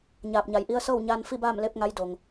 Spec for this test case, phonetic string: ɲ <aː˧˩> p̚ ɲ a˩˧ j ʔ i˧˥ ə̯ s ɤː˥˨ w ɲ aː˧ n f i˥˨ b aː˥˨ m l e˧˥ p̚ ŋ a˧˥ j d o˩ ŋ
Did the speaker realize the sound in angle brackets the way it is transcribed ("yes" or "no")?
yes